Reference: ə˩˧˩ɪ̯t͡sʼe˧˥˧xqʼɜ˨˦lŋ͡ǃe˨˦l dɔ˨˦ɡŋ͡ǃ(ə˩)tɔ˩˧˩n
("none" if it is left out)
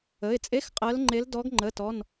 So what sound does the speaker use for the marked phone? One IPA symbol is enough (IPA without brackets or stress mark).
ə˩˧˩